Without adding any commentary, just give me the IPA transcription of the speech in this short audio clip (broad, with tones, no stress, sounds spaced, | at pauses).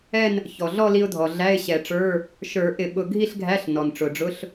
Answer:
ɛ˥˧ n | ç ɔ˩ ɮ ɔ˥˧ l i˧ ʊ̯ dʱ ɔ˩ ɮ æ˧˥˧ ɪ̯ ɕ ɛ˨˩˦ ʈ͡ʂ ə˞˧˥˧ | ʃ ə˞˨˩˦ ʔ ɪ˨˩˦ ɓ ʊ˧ ɡʱ i˥˧ ɬ ɡʱ æ˧˥˧ ɬ n ɔ˩ n ʈ͡ʂ ʊ˩ ɖ͡ʐ ʊ˧˥˧ ɬ